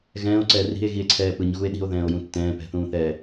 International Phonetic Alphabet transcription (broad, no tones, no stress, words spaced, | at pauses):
ɣɛ̃ːo̯ǀɛː ri̤e̯ɣie̯ǀʰɛː pɯɲɣue̯ ɗi̤o̯ðɛ̃ːo̯jũ tːɛ̃ːpɛ̤θũːθɛː